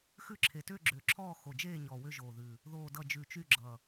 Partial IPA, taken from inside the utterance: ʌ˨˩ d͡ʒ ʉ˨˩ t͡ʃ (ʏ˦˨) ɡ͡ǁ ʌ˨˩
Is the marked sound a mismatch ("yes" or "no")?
yes